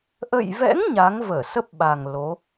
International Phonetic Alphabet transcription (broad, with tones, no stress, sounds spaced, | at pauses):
ʔ ə̰˧˨ j v ɛ̰˧˥ ŋ ɲ a˨˦ ŋ v əː˧˩ s ə˦˥ p̚ ɓ a˨˩ ŋ l o˨˦